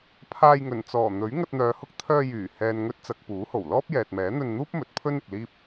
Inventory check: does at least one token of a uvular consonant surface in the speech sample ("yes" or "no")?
no